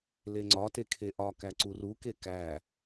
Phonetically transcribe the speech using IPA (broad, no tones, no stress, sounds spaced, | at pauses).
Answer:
l e ŋ͡ǀ ɒ t e kʰ e ʔ ɒ k æ ǀ u r u k e k æ